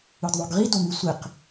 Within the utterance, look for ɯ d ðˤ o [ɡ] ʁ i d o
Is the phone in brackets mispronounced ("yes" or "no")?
no